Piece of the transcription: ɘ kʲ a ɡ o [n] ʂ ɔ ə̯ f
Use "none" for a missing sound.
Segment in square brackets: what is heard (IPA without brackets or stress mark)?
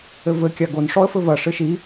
n